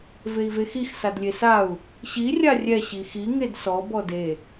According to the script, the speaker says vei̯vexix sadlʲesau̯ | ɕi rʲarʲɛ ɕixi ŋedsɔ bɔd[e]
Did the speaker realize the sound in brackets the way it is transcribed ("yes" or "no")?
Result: yes